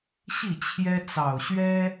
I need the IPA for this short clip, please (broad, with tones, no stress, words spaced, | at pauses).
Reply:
ɕi˥˨t͡ɕʰjɛ˦ t͡sɑ˨˩ʊ̯ɕɥɛ˦